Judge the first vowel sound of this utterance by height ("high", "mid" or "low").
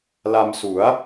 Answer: low